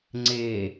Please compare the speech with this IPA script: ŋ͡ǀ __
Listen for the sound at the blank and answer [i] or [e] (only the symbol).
e